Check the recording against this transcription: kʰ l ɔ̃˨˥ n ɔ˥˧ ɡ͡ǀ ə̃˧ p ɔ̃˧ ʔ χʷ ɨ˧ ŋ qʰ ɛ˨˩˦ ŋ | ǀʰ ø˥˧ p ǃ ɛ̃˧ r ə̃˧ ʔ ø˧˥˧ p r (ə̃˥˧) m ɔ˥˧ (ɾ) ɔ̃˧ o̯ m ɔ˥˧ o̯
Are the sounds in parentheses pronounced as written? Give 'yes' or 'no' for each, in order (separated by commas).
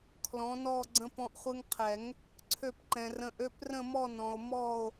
yes, no